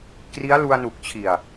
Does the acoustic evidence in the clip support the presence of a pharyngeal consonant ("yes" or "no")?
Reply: no